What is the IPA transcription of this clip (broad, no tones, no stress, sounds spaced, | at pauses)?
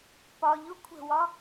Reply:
p ɒ ʎ ʊ kʷʰ ə̤ w ɒ